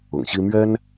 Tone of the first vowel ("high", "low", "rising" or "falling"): low